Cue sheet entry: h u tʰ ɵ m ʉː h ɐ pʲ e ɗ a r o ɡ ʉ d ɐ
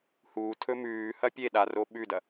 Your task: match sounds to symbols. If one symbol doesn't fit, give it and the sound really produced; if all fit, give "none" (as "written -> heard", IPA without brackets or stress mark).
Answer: ɡ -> ɓ